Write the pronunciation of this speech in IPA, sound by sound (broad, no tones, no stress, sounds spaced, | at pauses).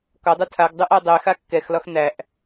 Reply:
k ɒ dˤ u tʰ a ɡ dˤ u ʔ a dˤ ɛ x a kː ɛ x l ɒ x n̪ æ ʔ